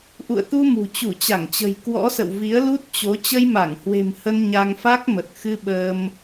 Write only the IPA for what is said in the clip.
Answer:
ʔ ṵ˧˨ ə̯ t̪ u˧ m ṳ˨˩ t͡ɕ u˧˩ t͡ɕ a˧˩ ŋ t͡ɕ ə̤˨˩ j k w ɔ̰˧˥ s ə̰˧˨ w v i˨˦ ə̯ l u˦˥ t̚ t͡ɕ o˨˦ t͡ɕ ə˧ j m a˧˩ ŋ h w e̤˨˩ m h ə˧ n ɲ a˧ ŋ f a˦˥ k̚ m ə˨˩ t̚ x ɨ˧ ɓ əː˧ m

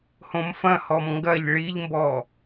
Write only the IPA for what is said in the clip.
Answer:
h õ m f ɐ̃ h ɔ m ŋ ɡ ɐ ʎ ɭ i ʎ m b ɔ

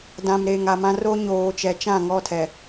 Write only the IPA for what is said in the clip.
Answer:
d ã˨ m ɾ eː˨ ŋ a˨ m ã˦ r o˦ ɲ oː˨ t͡ʃ ɛ˨ t͡ʃ ã˦˨ ŋ ɔ˦˨ tʰ ɛ˨

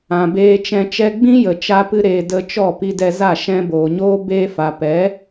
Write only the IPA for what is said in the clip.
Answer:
ã˨ b eː˧ t͡ʃ ɛ̃˧ t͡ʃ ɛ˧ ɡ͡b ĩ˦ j ə˨ t͡ʃ a˦ p ɨ˦ ɾ eː˧ d ə˧ t͡ʃ ɔ˦˨ p i˧ d ɛ˧ z a˦˨ ʃ ɛ̃˧ b oː˨ ɲ oː˦ b eː˧ f a˨ p ɛ˨˦

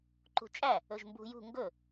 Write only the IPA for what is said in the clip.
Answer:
ǃ ṳ t͡ʃʼ æ | ɵ ʒ m b ṳ j ṳ ŋ ɡ ɵ

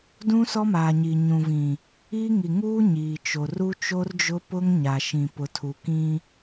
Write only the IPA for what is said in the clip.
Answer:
d ũ˦ s ɔ˦ m aː˨ ɲ iː˨ ɲ ũ˨ v ĩ˨ | iː˦ ŋ i˨ ŋ uː˦ ɲ iː˨ t͡ʃ o˨ r u˦ t͡ʃ o˦ r d͡ʒ ʊ˦ p ʊ˦ ŋ ɲ a˨ ʃ ĩ˨ p ʊ˨ tʰ u˨ k ĩ˦

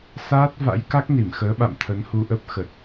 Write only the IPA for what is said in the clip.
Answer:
s aː˦˥ t̚ v a̰˧˥ j k a˦˥ k̚ n i˧˩ m x əː˨˦ ɓ a̰˧˨ m t̪ʰ ə˨˦ n h u˧ ʔ ə˦˥ p̚ x ə˨˩ t̚

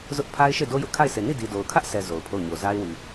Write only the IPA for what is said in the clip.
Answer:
z ʊ˦ ʔ pʰ a˦ ɪ̯ ʃ e˦˨ d o˦ j ʊ˦ ʔ kʰ a˦˨ ɪ̯ s e˨ n i˦˨ d i˨ d o˨ ʊ̯ kʰ ä˦ ʔ s ɛ˨ z o˨ ʊ̯ pʰ o˦˨ ʊ̯ ɲ o˨ z a˦ ɪ̯ w i˨

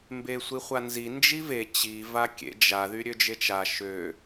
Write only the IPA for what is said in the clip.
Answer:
m b e sʷ i χʷ a n z i n d͡ʒ i v e t͡ɕ i v a kʲ ḛ d͡ʒ a ð y ɾʲ ø d͡ʒ e t͡ʃ a ʃ ø

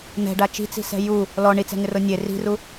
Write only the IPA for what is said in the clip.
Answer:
n̪ ɛ̤ ɖ a t͡ʃ i̤ t͡s i̤ s ɛ̤ j u | l ɔ ɳ i t͡s ɛ̤ ŋ ɪ r o nʲ e r i̤ r u

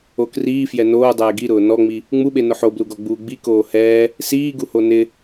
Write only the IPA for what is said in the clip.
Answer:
o k r iː f j ɛ n oː dˤ ɛː ɡ i ɾ ʊː n ɔ ŋ͡m i | ŋ͡m u ɓ e n ʊ ħ o b l u ɡ ɔ ɡ͡b uː ɡ͡b i k oː h ɛː | s iː ɡ u h o n ɪ

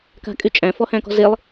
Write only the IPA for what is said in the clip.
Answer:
k a̤ kʼ y t͡ʃʼ æ̃ f ɔ h æ̃ k ɔ̤ z e lˠ

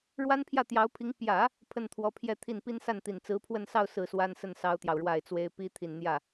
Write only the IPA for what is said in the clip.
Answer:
ɻ w a˥ n pʰ j ä˥˩ t̪ j ɑ˧˥ ʊ̯ pʰ i˧˥ ŋ p j ä˨˩˦ | pʰ ə˥˩ n t̪ʰ w ɔ˧˥ pʰ j ɛ˥˧ t̪ʰ i˥˩ n p i˥ n s a˥˩ n t̪ i˨˩ n t͡s ɹ̩˧˥ pʰ w ə˥˧ n s ɑ˥˧ ʊ̯ s ɹ̩˥˩ s w a˥ n s ə˥˩ n s ɑ˥ ʊ̯ t̪ j ɑ˨ ʊ̯ ɻ w a˥˩ ɪ̯ t͡s w e˥ ɪ̯ p i˥ t̪ʰ i˨˩ n n̪ j ä˥˩

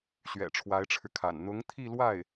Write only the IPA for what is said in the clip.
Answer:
ɕ ɥ ɛ̰˨˩ ʈ͡ʂʰ w a˧˥ ɪ̯ ʈ͡ʂʰ ɻ̩˧ kʰ a̰˨˩ n n̪ ʊ˧˥ ŋ t̪ʰ i˥˧ l w a˥˩ ɪ̯

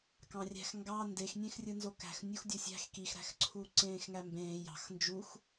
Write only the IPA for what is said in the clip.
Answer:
k ɑ̃ rʲ æ̤ x ŋ ɡ ɑ n d e x nʲ ẽ x rʲ ɯ n z o k æ̤ x nʲ u x dʲ o sʲ æ̤ x k i x ɾ æ̤ x ǀʰ uː ǀ ẽː x ŋ æ m b ẽː j ɑ̤ x n d͡ʒ u x

